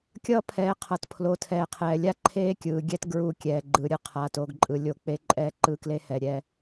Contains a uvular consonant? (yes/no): yes